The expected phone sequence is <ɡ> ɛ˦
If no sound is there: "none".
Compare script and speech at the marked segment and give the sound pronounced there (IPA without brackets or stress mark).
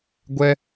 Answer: ɡʷ